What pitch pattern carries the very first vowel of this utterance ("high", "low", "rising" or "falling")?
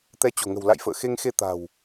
rising